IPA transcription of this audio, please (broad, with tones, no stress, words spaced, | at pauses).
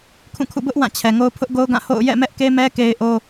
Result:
kʰũ˦˨kʰṵ˦˨ bʊ˦ʔ wã˦˨t͡ɕʰɛ˨ŋo˦ʊ̯ pʰʊ˦ʔɡo˦ʊ̯ɡã˦˨ho̰˦˨ʊ̯ jɛ̰˦˨mɛ˦ʔke˦mɛ˦ ke˦ɪ̯ʔo˦